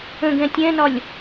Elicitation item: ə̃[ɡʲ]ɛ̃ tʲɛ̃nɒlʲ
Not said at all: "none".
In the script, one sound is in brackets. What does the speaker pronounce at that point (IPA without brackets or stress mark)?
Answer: ɡ